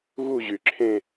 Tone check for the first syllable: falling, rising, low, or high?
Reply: falling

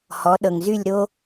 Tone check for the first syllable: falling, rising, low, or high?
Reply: rising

